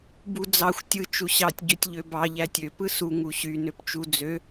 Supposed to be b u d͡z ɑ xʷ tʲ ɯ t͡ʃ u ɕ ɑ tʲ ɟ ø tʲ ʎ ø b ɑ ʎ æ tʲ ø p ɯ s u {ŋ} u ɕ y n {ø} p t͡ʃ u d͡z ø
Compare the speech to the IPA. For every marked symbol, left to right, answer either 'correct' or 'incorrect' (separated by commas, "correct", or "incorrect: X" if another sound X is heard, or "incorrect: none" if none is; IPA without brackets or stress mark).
correct, correct